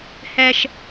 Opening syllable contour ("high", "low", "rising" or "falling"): high